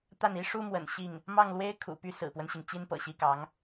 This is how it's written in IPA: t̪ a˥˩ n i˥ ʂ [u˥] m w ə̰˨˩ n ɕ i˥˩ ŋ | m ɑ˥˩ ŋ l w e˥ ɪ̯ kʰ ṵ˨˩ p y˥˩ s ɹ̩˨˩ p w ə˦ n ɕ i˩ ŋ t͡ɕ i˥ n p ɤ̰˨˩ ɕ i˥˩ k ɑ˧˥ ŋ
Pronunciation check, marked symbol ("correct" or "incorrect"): correct